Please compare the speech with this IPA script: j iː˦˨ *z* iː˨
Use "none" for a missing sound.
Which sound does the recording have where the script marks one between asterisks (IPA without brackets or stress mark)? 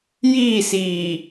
s